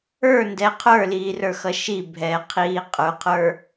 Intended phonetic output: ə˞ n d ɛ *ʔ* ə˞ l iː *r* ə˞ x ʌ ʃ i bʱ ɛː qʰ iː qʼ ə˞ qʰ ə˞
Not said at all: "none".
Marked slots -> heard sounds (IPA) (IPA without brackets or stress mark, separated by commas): qʰ, r